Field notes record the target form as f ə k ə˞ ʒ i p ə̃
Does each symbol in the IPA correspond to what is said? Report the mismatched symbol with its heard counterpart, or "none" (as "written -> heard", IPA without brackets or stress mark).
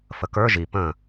none